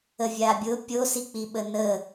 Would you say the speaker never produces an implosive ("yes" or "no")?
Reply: no